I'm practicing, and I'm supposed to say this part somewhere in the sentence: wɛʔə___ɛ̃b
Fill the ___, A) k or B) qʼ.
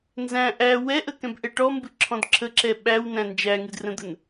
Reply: A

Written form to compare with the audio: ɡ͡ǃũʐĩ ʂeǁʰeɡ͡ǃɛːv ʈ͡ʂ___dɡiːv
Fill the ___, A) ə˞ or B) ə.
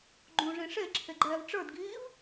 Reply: A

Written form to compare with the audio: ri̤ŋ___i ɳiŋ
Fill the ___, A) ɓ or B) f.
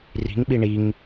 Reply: A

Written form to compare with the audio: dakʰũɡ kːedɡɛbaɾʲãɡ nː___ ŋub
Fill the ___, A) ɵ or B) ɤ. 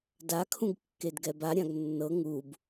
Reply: B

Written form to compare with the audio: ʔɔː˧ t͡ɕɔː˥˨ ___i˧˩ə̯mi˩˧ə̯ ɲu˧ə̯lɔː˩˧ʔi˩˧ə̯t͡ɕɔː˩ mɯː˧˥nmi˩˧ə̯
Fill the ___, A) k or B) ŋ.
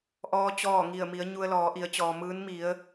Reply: B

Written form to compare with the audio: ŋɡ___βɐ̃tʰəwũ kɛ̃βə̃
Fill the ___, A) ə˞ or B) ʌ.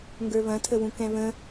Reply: A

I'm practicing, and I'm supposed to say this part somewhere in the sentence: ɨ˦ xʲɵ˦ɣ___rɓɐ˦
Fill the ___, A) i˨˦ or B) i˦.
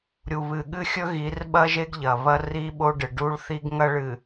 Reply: A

